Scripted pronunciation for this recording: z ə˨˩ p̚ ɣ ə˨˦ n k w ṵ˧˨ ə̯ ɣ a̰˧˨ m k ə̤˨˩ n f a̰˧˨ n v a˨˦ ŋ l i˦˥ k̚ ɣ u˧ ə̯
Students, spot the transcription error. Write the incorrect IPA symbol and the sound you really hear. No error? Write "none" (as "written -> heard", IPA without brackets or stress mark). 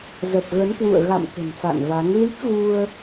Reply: none